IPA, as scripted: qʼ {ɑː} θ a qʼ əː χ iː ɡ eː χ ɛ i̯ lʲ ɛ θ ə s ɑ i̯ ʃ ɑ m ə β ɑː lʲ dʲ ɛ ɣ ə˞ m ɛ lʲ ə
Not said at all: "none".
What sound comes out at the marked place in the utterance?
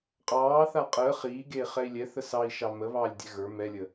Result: ɑː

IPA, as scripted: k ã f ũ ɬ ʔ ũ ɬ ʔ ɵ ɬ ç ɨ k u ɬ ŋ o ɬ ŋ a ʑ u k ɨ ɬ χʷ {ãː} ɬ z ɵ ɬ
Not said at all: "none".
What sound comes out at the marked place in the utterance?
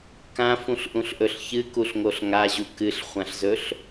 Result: ã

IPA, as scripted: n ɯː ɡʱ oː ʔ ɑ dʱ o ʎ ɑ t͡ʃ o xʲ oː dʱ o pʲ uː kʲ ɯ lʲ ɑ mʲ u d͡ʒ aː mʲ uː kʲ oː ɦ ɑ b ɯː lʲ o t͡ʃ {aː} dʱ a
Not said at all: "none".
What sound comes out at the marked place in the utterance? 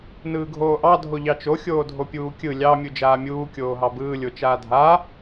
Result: aː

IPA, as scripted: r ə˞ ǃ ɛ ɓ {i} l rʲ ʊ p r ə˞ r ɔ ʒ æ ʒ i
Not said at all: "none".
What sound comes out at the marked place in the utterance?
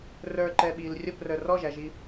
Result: i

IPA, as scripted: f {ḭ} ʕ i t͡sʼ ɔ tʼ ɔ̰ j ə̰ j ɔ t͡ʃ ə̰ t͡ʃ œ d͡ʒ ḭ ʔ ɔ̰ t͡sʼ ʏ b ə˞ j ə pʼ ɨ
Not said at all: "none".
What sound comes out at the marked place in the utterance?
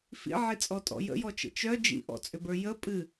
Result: ḭ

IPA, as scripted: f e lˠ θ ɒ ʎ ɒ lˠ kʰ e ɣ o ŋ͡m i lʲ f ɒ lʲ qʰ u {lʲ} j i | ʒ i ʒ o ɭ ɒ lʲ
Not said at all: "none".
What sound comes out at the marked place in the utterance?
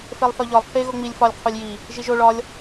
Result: lʲ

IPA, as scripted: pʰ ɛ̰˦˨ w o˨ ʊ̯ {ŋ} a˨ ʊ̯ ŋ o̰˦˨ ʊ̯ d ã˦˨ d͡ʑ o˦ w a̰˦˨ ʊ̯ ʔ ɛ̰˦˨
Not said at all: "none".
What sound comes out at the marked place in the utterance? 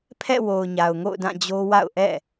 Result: ɲ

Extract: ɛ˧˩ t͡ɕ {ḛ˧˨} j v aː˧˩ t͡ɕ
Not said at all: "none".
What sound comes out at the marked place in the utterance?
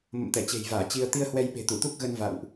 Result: e̤˨˩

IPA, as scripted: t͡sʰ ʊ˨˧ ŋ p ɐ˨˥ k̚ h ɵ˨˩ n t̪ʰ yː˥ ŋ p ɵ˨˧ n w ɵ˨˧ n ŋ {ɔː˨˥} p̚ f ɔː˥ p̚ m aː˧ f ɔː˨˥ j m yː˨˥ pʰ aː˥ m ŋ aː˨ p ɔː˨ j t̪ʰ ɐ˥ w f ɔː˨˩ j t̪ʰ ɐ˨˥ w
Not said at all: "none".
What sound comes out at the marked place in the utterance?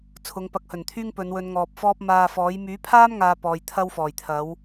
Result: ɔː˨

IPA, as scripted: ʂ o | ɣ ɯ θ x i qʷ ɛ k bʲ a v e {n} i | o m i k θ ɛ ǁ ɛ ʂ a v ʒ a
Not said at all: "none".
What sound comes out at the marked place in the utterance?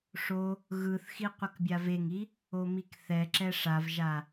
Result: ŋ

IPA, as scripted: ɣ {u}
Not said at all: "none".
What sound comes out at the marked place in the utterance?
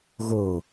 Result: o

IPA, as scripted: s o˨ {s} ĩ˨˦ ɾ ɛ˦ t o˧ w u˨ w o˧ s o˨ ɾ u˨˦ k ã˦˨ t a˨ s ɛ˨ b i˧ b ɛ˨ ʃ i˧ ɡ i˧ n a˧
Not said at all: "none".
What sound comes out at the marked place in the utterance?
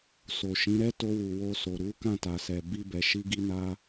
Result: ʃ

